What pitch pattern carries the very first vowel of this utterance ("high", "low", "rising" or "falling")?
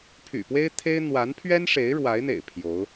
low